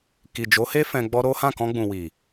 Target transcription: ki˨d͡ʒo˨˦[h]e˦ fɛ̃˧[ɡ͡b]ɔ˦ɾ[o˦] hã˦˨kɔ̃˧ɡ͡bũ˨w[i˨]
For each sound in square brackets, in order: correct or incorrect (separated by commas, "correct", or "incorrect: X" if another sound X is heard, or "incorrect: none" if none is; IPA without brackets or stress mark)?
correct, correct, correct, correct